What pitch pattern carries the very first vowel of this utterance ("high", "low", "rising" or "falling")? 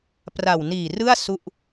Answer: low